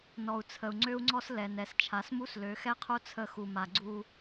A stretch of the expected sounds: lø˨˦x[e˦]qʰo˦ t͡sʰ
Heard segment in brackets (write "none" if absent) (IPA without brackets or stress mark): ɛ˦